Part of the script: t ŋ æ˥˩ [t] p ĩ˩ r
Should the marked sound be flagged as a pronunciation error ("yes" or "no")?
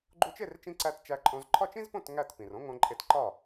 no